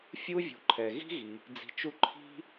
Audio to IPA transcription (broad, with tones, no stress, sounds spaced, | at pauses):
fʲ u˥ vʲ ṳ˨ ǃʰ ɛ˩ ɣ i̤˥ ɣ i˩ | d͡z i̤˨ t͡ʃ u˦ ǃʰ i̤˥